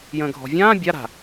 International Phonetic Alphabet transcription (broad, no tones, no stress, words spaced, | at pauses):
jə̃ːɡʱɔ̤vʲãː bʲaɾa̤